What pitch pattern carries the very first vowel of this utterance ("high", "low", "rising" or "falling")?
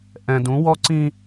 low